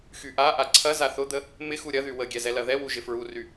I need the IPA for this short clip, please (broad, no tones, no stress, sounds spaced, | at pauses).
x y ʔ a ʔ a ǀʰ ɐ z a θ ʊ d̪ ə | m ɪ x u ɾʲ ɐ ð y w ə ɡʲ ɛ z ɛ l ɐ ð ɛ w u ʒ ɪ f ɹ u r y